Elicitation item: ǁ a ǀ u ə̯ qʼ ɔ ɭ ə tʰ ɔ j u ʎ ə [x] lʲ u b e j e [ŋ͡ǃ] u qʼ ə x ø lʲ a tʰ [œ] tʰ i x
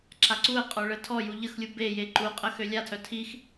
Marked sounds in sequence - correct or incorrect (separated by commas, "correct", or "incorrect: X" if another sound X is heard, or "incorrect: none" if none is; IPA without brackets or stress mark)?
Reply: correct, incorrect: ǃ, correct